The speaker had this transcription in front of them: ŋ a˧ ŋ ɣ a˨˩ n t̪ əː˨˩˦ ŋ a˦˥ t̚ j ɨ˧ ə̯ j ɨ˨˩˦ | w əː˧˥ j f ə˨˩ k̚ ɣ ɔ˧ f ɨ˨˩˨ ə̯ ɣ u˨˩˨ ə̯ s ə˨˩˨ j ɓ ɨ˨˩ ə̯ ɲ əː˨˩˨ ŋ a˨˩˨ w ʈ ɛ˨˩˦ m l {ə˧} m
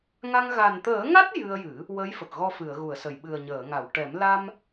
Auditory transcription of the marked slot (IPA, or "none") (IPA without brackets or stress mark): a˧